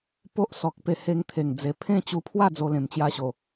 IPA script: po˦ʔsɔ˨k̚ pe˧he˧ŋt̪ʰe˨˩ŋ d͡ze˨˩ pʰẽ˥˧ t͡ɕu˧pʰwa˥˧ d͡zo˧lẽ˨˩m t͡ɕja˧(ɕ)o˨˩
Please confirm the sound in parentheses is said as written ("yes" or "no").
yes